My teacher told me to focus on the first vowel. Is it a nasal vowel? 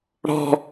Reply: no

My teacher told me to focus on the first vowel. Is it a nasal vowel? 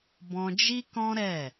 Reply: yes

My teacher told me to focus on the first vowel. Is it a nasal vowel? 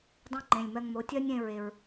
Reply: yes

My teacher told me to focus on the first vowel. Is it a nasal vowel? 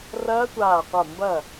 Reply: no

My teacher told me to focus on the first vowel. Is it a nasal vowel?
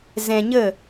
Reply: yes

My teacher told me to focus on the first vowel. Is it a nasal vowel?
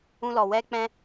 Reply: yes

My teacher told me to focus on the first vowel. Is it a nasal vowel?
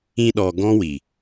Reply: yes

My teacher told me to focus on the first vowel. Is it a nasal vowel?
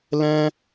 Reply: yes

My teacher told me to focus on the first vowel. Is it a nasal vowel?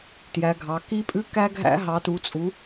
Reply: no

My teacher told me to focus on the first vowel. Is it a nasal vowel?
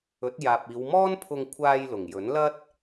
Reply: no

